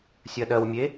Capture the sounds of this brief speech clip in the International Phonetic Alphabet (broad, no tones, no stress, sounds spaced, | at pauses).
sʲ ɜ ɗ ɜ w mʲ e